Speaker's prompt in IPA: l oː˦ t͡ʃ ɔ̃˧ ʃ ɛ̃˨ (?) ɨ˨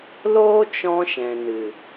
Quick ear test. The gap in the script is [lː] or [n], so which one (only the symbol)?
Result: n